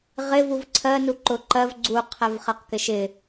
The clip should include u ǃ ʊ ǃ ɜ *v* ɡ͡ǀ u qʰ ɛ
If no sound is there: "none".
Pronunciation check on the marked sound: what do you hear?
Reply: v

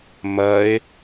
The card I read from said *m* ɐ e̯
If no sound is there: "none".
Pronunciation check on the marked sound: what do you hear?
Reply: m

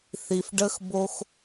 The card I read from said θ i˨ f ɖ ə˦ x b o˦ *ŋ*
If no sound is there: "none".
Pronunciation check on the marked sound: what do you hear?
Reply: x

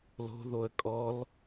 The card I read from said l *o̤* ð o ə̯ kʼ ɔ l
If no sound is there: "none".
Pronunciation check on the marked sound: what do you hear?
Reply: o̤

